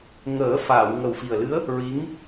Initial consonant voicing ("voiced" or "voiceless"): voiced